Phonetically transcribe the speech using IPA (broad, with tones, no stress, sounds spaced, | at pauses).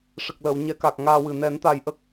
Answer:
ʂ ə˨˩ k̚ l əː˨˩˨ w ɲ ɛ˨˩˦ k a˨˩ k̚ ŋ aː˧ w ɨ˨˩ n ɛ˨˩˦ n t̪ a˨˩ j ʔ ə˦˥ k̚